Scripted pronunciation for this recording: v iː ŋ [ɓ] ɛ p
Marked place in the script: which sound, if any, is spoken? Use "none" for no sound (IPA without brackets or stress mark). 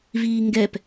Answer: ɡ